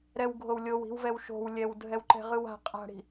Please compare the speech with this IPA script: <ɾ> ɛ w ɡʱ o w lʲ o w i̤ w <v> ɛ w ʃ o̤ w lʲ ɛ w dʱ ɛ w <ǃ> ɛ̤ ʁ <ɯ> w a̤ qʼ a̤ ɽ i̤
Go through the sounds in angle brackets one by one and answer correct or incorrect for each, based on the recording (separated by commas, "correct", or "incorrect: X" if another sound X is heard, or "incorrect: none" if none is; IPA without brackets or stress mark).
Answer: correct, correct, correct, correct